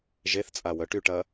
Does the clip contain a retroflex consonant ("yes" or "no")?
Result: yes